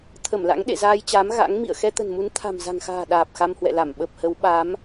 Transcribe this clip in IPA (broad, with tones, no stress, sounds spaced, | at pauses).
t̪ʰ ə˧˩ m l a̰˧˥ ŋ ɗ ḛ˧˨ z aː˧ j t͡ɕ aː˨˦ m ɣ a̰˧˥ ŋ m ḭ˧˨ ə̯ x ɛ˧ t̪ ə̤˨˩ n m u˨˦ n t̪ʰ a̤˨˩ m z a̤˨˩ ŋ x a̤ː˨˩ ɗ aː˨˩ p̚ x a˧ m h w ɛ̰˧˨ l a˧˩ m ɓ ə˨˩ p̚ h ə˨˦ w ɓ a˨˦ m